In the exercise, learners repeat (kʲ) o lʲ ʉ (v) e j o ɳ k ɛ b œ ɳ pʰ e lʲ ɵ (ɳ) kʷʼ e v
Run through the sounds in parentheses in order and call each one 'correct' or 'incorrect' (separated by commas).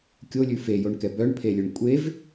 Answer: correct, incorrect, correct